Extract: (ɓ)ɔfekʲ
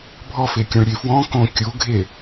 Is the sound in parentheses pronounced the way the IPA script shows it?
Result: no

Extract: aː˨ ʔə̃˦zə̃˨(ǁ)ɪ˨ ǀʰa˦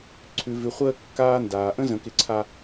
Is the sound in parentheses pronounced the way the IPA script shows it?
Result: no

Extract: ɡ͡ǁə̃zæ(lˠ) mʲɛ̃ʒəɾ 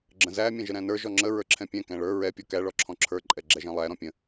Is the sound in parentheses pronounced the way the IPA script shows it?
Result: no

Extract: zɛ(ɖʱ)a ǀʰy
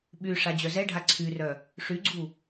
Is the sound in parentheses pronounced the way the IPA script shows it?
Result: yes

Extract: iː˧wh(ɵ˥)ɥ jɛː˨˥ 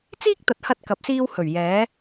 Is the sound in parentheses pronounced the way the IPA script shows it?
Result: no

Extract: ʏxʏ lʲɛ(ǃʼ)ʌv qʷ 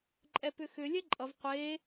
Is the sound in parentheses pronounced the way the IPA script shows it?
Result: yes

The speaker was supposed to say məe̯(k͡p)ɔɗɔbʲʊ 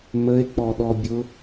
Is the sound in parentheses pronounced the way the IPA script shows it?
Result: yes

